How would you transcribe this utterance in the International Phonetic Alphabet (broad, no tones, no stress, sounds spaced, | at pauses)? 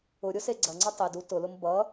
ʊ ɾʲ o s e ɡ͡ǀ ɐ ŋ͡ǀ ʌ tˤ e d u t ʊ l ʊ m b ʌ